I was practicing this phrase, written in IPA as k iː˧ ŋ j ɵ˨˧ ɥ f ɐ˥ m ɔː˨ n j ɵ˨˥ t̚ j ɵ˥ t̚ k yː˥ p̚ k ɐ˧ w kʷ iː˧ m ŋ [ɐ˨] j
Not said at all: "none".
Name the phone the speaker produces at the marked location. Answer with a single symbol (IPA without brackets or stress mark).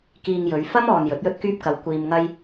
ɐ˥